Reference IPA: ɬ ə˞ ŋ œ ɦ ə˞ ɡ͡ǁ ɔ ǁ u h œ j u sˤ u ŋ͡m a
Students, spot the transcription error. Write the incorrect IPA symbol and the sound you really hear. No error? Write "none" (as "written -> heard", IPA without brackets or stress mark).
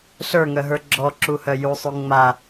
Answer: none